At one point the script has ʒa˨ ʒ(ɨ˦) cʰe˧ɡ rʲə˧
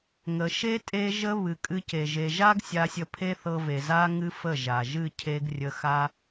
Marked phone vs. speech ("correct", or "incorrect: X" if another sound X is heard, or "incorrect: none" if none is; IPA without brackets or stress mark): incorrect: ɨ˦˨